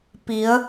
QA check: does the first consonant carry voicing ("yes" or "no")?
no